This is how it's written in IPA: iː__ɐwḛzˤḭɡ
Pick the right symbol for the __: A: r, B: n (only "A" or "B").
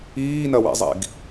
B